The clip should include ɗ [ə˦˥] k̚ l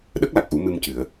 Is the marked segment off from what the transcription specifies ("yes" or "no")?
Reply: no